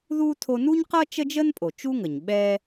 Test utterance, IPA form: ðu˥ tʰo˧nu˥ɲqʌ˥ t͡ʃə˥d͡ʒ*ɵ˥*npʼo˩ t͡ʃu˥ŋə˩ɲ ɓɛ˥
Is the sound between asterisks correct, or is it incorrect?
incorrect